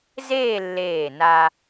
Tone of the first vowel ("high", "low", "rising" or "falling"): falling